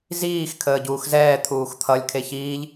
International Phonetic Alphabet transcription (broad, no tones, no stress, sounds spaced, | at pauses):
z iː x kʰ əː ɟ uː x z ɛː t̪ʰ uː x t̪ʰ ʌ lʲ kʰ e ç iː ʎ